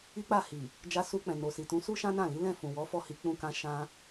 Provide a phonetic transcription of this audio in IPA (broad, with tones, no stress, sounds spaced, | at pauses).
i˦ k͡p a˦˨ h i˨ | d͡ʒ a˧ s u˧ k͡p ɛ̃˨ n o˨ s i˨ t ũ˨˦ s u˦ ʃ ã˦ n ã˦˨ l i˨˦ l ɛ̃˦˨ f ũ˨ w ɔ˨˦ f ɔ˦˨ h i˧ k͡p ũ˧ k ã˧ ʃ ã˧